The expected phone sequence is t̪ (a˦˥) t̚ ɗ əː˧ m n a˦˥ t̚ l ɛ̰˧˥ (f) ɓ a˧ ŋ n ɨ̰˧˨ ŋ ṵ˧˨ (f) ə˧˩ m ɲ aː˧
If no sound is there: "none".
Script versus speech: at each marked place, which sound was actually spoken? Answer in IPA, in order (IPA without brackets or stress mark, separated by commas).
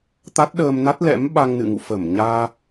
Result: a˦˥, m, f